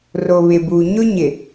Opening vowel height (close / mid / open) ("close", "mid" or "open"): mid